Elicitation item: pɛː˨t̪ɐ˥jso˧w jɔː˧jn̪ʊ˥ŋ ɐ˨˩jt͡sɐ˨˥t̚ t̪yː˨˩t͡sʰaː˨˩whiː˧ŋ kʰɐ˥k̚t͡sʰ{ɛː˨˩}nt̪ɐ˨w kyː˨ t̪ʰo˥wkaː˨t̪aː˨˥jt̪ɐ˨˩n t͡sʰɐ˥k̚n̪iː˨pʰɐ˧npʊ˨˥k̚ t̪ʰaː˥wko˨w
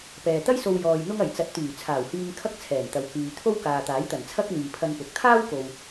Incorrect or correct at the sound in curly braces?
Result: correct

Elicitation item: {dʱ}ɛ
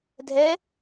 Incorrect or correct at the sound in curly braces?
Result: correct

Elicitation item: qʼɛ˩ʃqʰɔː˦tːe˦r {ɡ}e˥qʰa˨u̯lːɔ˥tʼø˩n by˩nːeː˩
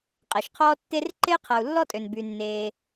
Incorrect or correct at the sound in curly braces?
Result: incorrect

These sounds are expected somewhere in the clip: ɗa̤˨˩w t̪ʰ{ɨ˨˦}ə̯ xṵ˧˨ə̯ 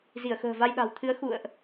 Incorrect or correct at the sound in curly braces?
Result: correct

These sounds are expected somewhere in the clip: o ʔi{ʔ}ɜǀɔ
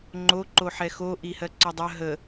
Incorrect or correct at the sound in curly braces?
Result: incorrect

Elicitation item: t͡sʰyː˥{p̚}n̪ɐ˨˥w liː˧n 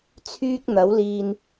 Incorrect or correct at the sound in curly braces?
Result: incorrect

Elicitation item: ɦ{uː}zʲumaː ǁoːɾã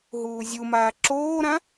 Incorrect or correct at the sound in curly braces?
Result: correct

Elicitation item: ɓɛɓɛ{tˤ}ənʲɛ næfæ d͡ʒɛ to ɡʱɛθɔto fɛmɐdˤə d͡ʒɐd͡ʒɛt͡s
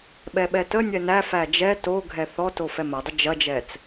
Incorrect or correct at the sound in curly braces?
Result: incorrect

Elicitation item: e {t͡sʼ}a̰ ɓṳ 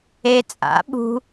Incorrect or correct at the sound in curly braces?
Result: correct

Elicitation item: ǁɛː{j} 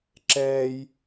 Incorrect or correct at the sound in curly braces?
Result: correct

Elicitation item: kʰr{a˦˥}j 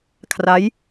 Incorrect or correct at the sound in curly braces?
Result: correct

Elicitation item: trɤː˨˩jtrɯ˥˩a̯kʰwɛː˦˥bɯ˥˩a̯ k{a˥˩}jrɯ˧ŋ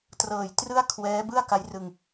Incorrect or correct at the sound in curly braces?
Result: incorrect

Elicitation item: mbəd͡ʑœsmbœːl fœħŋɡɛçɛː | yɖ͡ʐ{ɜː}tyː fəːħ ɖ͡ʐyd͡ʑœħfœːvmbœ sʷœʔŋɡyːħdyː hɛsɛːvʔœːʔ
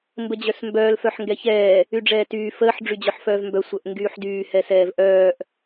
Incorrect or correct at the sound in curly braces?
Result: incorrect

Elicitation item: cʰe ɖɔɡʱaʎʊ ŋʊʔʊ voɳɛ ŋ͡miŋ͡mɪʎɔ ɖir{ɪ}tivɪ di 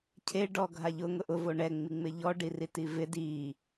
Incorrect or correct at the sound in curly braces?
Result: incorrect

